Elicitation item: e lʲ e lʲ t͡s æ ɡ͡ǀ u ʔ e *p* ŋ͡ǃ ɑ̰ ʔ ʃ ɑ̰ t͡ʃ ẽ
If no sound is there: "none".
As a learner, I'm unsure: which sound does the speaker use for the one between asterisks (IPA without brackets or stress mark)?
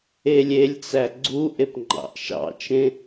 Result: p